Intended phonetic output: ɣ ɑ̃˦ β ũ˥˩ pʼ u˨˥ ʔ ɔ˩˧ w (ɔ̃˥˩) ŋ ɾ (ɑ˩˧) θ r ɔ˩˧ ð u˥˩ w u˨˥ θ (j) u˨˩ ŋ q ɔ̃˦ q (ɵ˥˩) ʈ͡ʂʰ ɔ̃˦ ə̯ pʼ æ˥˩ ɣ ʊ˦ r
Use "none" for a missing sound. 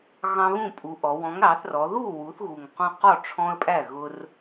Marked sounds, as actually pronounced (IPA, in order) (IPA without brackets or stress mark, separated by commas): ɔ̃˨˥, ɑ˩˧, ɣ, ɔ˥˩